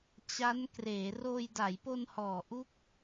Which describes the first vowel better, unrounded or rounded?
unrounded